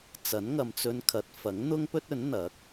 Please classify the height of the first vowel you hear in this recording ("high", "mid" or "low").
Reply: low